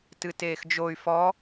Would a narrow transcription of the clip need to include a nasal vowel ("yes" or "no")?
no